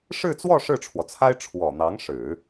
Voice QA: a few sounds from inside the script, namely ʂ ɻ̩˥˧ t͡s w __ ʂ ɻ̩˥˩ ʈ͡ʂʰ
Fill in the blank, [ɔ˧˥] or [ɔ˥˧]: ɔ˥˧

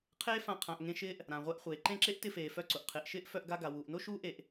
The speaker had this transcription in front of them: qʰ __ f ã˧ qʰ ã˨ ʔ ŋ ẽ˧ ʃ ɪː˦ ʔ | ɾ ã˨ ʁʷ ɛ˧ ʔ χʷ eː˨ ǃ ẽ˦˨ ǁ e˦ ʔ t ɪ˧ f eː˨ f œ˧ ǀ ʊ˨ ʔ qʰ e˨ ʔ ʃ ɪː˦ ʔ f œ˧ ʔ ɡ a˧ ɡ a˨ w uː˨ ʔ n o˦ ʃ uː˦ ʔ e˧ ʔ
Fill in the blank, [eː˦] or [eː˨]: eː˦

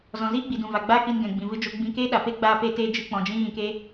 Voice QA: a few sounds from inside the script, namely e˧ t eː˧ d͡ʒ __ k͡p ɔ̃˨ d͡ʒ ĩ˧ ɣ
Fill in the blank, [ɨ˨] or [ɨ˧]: ɨ˧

